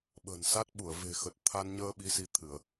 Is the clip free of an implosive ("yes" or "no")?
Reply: no